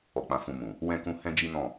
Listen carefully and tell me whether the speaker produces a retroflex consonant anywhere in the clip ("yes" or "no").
no